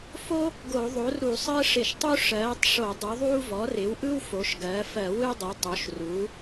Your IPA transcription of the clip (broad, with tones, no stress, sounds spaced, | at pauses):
f o˥ | ɡ o˧˩˧ ðˤ o˩˥ r ɾ u˧˩˧ sˤ ɜ˥ ʂ ɪ˧˩˧ ʃ tˤ u˥ ʂ ɜː˩˥ tˤ ʂ o˧˩˧ dˤ u˩˥ ðˤ uː˥ v ɔ˩˥ r ɪ˩˥ w ʔ ɯ˥ w f o˩˥ ʃ ɡ ɜ˩˥ f ɜ˧˩˧ w ɯ˥ dˤ ɯ˩˥ tˤ o˩˥ ʃ r uː˩˥